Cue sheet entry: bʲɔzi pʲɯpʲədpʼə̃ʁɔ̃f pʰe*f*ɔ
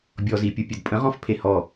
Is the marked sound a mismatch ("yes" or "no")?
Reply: yes